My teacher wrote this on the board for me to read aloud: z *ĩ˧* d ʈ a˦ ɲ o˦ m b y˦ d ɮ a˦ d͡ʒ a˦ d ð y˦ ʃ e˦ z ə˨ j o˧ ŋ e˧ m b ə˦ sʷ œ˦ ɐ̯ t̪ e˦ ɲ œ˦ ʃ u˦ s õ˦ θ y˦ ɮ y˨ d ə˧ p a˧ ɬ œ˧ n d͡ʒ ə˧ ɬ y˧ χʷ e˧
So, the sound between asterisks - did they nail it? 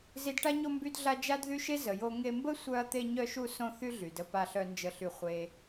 no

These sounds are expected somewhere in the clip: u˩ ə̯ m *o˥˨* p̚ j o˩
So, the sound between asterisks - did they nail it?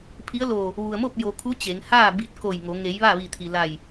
yes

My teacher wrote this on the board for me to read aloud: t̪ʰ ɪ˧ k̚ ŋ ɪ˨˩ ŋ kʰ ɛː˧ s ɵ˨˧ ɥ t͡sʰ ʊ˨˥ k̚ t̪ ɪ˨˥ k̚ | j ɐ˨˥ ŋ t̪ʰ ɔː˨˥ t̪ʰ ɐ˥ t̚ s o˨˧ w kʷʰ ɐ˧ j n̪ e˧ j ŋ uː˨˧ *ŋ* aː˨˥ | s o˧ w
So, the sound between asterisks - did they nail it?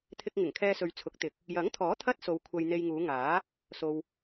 yes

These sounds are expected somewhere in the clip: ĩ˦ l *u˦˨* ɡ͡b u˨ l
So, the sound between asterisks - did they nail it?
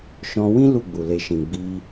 yes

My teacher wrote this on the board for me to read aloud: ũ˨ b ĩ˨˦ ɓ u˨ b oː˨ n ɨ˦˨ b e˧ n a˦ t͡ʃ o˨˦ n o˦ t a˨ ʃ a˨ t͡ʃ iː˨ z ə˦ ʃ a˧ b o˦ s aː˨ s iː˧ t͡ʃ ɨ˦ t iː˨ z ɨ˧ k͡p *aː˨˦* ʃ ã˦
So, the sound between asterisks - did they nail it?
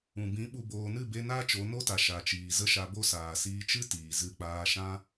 no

